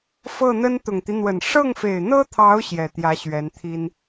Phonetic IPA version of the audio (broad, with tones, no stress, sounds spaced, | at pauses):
f ɤ˥˩ n̪ ə˥ n t̪ ʊ˨˩ ŋ t̪ i˦ n̪ w ə˨˩ n ʂ ɤ˥˩ ŋ f e˨˩ ɪ̯ n̪ ɤ˥ t̪ʰ ɑ˧˥ ʊ̯ ɕ j ɛ˨˩ t̪ j ä˧˥ ɕ ɥ ɛ˧˥ n t̪ʰ i˥ n